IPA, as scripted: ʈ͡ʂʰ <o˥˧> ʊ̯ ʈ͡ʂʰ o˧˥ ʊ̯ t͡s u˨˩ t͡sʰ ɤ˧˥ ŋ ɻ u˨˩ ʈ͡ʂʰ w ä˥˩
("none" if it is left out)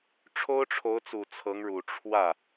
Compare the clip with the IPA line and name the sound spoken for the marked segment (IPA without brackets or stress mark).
o˥